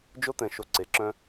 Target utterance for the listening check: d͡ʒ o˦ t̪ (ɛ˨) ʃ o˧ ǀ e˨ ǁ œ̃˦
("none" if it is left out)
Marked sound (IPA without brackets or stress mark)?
ɛ̃˨